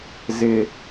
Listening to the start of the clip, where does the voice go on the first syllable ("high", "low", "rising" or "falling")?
high